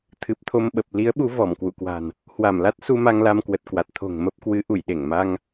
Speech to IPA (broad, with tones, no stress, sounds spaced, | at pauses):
t̪ʰ ɨ˨˩ p̚ t̪ʰ o˧ m ɓ ə˨˩ p̚ l i˨˦ ə̯ ɓ u˨˦ v ɔ˧˩ m k w ṵ˧˨ k w a̤˨˩ n | h w a˧˩ m l a˦˥ t̚ s u˧ m a˧ ŋ l a˧ m k w ə˨˩ t̚ k w a˨˩ t̚ t̪ʰ o̤˨˩ ŋ m ə˦˥ p̚ k w ɨ˨˦ ʔ u˧˩ j ɗ e˧˩ ŋ m a˧ ŋ